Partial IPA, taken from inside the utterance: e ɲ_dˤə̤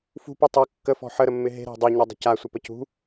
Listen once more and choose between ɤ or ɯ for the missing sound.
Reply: ɤ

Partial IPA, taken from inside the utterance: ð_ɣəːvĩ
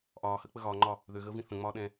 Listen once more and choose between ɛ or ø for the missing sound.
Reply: ø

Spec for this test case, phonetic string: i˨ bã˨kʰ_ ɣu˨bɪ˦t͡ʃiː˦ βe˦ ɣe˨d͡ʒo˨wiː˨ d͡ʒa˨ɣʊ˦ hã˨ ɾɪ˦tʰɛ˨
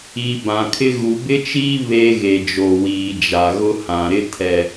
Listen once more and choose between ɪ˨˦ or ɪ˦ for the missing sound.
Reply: ɪ˦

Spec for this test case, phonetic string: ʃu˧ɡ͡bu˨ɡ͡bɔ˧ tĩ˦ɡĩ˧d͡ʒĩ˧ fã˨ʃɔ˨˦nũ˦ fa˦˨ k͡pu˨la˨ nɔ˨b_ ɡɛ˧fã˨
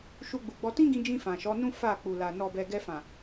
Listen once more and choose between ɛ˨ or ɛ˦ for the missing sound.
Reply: ɛ˨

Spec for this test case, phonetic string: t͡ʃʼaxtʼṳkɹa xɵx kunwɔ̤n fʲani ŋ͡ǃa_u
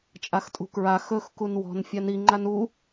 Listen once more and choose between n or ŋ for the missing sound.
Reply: n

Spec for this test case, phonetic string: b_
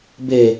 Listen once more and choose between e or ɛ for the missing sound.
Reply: e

